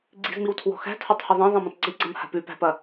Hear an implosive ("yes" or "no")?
no